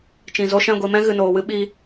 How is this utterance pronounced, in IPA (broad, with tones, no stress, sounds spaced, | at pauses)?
t͡ʃ ĩ˨ z o˧ ʃ ɛ̃˦˨ ɡʷ i˨ m ɛ̃˦ ɣ ɨ˨ n oː˨ w ɨ˦ ɓ i˧